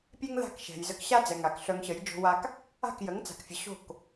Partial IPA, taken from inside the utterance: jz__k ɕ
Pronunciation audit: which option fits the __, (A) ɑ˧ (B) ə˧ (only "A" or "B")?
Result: B